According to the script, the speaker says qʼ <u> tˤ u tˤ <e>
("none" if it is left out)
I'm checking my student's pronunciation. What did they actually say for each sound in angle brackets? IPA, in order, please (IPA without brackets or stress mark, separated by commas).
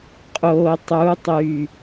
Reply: o, y